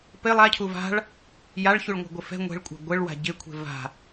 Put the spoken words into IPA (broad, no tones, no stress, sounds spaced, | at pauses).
p ɪ lˠ a cʰ u v a̤ ɭ | j a ɭ ç u ɭ ŋʷ ɛ̤ ɡʷ ɪ f ɛ̤ ŋʷ e̤ ɭ kʷʼ a̤ ɡʷ ɪ ɭ w a̤ ɟ ɪ kʷʰ e̤ v a̤